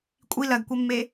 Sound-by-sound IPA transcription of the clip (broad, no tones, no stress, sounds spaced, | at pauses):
kʷʼ i l ɜ ɡ kʷ e mː e